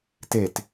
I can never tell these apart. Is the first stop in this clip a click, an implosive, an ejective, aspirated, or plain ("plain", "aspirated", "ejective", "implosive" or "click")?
plain